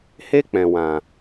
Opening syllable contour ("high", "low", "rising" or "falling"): high